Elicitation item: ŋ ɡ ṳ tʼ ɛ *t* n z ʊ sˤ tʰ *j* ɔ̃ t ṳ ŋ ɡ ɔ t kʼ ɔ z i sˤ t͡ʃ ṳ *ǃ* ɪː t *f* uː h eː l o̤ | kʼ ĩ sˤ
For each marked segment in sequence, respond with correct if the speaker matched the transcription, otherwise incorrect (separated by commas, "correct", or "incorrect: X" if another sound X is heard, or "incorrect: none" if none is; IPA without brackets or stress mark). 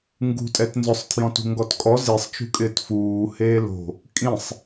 correct, correct, incorrect: kʼ, correct